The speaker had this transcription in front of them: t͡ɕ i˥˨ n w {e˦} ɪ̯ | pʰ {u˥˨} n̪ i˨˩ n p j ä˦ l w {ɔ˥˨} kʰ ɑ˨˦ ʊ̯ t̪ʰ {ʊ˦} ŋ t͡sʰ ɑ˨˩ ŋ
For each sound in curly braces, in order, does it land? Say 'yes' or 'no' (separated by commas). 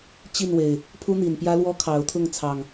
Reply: no, no, no, no